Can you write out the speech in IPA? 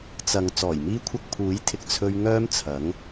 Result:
t͡s ɐ˨ ŋ t͡s ɔː˨˩ j m iː˧ kʷʰ ɐ˧ k̚ pʰ uː˨˥ j t̪ʰ ɪ˧ k̚ t͡sʰ ɵ˧ ɥ ŋ œː˥ m t͡sʰ ɐ˨˥ ŋ

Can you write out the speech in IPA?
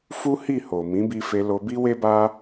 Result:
f u˦ h i˦˨ h o˨ m ĩ˨˦ b i˧ f e˧ l o˧ b i˦ w e˦ b a˦

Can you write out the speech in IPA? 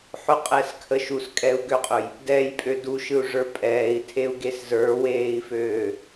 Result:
ħ ʊ qʼ ɛ s kʰ ə ʃ u s kʼ ɛ u̯ ɡ ø qʼ ʊ j | d ɛ j pʼ ø d u ʃ ɯ u̯ ʐ ə˞ pʼ ɛː i̯ tʰ e u̯ ɡ e s z ə˞ w eː i̯ f øː

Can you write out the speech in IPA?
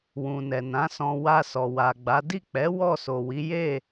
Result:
w ũ˨ n ɛ˨ n ã˨˦ s ɔ̃˧ w a˧ s ɔ˨ w a˨ ɡ͡b a˨˦ d i˦˨ k͡p ɛ˨˦ w ɔ˦˨ s o˨ w i˨˦ j e˦˨

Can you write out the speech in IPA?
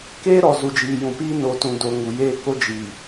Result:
k eː˦ ɾ ɔ˨ z u˨ d͡ʒ iː˨ j ũ˨ p iː˦ n o˨ t ũ˨ d o˨ ŋ u˨ j eː˦ k o˦ d͡ʒ iː˨

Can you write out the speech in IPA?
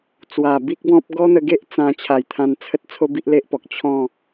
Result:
t͡s w a˨˩ b i˦ k̚ b ɔ̃˦ p̚ ɡ ɔ˦ n̪ ə˧ ɡ e˦ ʔ t͡s ã˧ t͡ɕʰ a˨˩ j t̪ʰ ã˧ n t͡sʰ ə˦ t̚ t͡sʰ o˦ b i˦ ʔ l e˦ ʔ p ɔ˨ k̚ t͡ɕʰ ɔ̃˥˧

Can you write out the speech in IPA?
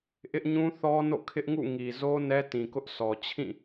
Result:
ʔ ɪ˦ ʔ ɲ ũ˦ θ ɔ˦ n o̰˦˨ kʰ ɪ˦ ʔ ŋ ṵ˦˨ ŋ i˨ z o˦ n ɛ˦ t ĩ˨ k ʊ˦ ʔ s ɔ˨ t͡ɕʰ ĩ˦˨

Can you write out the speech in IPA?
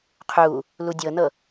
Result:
qʰ uː | l u dʲ ɤ n ɤ

